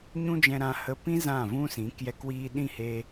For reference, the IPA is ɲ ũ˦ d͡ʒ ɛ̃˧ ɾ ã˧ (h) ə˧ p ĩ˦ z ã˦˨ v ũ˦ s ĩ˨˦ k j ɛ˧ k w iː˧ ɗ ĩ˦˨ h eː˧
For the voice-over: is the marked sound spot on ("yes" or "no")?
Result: yes